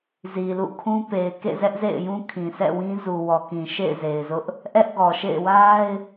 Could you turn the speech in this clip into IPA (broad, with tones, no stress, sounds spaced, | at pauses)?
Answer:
z i˨ l ṵ˦˨ kʰ ũ˦ p e˨ ɪ̯ k ḛ˦˨ z ɛ˦ ʔ z ḛ˦˨ ɪ̯ j ũ˦ kʰ ĩ˨ s ɛ̰˦˨ w ĩ˦ z u˨ w ɔ˨ k ĩ˨ ʃ ḛ˦˨ ɪ̯ z e˨ ɪ̯ z ʊ˦ ʔ | ʔ ɛ˦ ʔ ɡ ɔ˨ ʃ ḛ˦˨ ɪ̯ w a˦ ɪ̯